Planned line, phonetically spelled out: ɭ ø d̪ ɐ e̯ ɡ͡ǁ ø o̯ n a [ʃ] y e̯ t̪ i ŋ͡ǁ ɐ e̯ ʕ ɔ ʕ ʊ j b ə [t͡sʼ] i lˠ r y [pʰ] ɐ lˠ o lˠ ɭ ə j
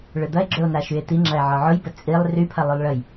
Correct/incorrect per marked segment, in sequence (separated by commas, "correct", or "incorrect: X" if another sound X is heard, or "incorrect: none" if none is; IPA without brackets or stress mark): correct, correct, correct